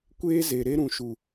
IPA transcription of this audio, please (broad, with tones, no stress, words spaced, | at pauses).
kʷeː˦ze˨ ɾe˦ɾũ˨ ʃu˨